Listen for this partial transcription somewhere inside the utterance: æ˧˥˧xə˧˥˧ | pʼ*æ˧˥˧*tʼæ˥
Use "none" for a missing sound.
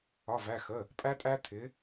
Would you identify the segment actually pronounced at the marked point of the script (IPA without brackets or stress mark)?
æ˥